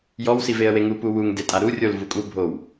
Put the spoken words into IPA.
jɔwsiveə̯ weŋu puwuŋ detʼaɾu rʲol vukʼu bʱow

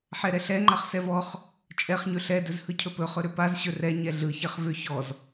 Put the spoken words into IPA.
ħɛɾɛɬɛ ŋ͡ǃaχsɛvɔχ | t͡ʃʼɛχ ɲɵɬɛ dɵzhɯcʰɵpɵ χɵɾʏpaz ɕɵrɛ ɲɛɮɯ çɛχvʏ çɔz

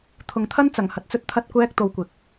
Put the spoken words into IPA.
t̪ʰʊ˨ŋt̪ʰɐ˥nt͡sɐ˨˩ŋ hɐ˨t̚t͡sɵ˥t̚ t̪ʰɐ˥t̚kʷɛː˥k̚t̪o˧wkʷɪ˨k̚

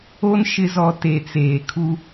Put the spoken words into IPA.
o˦n ʃɪ˨zɔ˨ te˨t͡seː˨kʰu˦

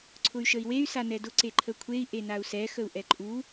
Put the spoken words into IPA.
ǀʰʊy̯ʃəi̯wey̯ sanɛdʊ ǀeǃʰəkʷʰei̯ ʔenau̯sɛ xəu̯ʔɛǃʼu

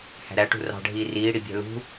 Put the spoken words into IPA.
hæ̤ɾæʈṳ rɑ̤ɖʱiː riːɽibʲæ̤ lṳ

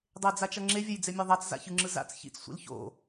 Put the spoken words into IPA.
dˤed͡zat͡ʃʌ ŋ͡ǁevʲʌjd͡zemʲa ðˤat͡sza̰çɯŋ͡ǁɯ za̰t͡s çḭt͡ssʷḭl ço̰

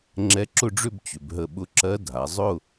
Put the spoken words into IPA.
ŋ͡ǁɛ˧˥ǁʊ˥˧ɖ͡ʐʏ˥˧b t͡ɕʏ˩˧bɦə˧˩ɓʊ˧˥ǁɜ˧˥ dʱa˩˧ zˤʊ˥˧

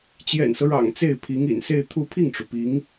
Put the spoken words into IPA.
t͡ɕjɛ̰˨˩nsɤ˦ɻɑ̰˨˩ŋ t͡se˥˩ɪ̯pʰi˧˥ŋḭ˨˩n se˥˧ɪ̯t̪ʰu˥˧ pʰi˥˩ŋʈ͡ʂu˩ pi˧˥ŋ

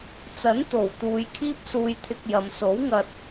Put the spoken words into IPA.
t͡sɐ˨˥n t̪o˨˩w t̪uː˨jkʰiː˥p̚ suː˧jt̪ʰɪ˧k̚jɐ˨m so˨˥wŋɐ˧t̚

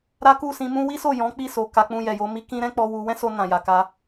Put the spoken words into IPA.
ɾa˦ku˦˨sĩ˧ mũ˦ wi˦so˦˨ jɔ̃˨˦ k͡pi˦˨so˨ ka˧k͡pũ˧ jɛ˨jo˧ mi˦kĩ˦ɾɛ̃˦ k͡pɔ˧wu˧ wɛ̃˦so˧ nã˨ja˨ka˧

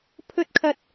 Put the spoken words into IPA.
pʰɵ˧t̚kʰɐ˨t̚

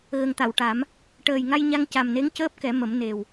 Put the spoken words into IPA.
ɣə˨˩ŋt̪a˨˩˨wʈa˨˩˦m | ʈəː˨˩jŋa˧jɲa˧ŋ ca˨˩mne˧˥ŋcəː˦˥p̚ kɛ˨˩˦mə˨˩˦m ne˨˩w

